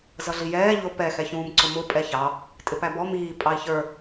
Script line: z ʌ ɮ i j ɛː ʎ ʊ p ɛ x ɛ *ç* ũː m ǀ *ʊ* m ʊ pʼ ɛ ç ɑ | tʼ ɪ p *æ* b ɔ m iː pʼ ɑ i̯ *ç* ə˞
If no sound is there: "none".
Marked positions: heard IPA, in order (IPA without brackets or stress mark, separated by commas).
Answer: ç, ʊ, æ, ç